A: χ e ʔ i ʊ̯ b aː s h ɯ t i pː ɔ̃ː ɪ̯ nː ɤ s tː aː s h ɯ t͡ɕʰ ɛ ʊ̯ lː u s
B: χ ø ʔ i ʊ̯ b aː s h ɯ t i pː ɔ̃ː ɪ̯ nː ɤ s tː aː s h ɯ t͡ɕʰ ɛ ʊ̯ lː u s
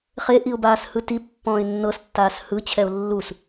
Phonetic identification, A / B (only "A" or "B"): A